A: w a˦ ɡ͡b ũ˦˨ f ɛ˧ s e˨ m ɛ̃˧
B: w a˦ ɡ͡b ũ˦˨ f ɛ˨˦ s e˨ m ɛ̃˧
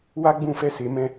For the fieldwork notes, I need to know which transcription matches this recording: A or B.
A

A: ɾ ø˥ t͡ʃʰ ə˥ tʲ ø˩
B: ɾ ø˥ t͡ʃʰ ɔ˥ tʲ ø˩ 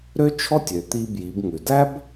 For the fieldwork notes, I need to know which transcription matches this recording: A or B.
B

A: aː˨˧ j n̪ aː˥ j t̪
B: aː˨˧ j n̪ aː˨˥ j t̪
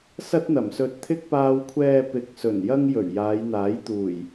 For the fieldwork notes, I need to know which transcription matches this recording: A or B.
B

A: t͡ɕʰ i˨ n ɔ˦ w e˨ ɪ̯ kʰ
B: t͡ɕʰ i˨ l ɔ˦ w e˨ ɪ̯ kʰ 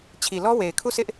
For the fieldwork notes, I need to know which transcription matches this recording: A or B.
B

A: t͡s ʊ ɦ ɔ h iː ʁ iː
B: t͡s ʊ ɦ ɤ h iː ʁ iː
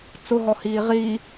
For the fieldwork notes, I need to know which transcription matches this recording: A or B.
A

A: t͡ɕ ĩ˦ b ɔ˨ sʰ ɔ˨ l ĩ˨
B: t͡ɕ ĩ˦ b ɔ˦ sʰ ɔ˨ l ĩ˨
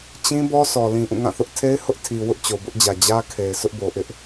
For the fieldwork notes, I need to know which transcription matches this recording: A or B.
B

